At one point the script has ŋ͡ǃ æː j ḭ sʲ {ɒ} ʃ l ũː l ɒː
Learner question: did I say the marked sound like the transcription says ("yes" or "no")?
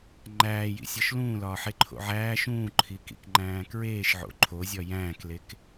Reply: yes